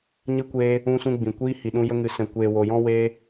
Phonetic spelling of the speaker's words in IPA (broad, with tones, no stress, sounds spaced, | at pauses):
ɲ ɨ˧ kʷ eː˧ | ũ˧ s ũ˧ ɡ͡b ĩ˨ kʷ iː˦ h i˨ ɗ ũ˧ j ə˧ ŋ ɨ˨ s ɛ̃˨ kʷ eː˨ w o˨ j ɔ̃˦ w eː˧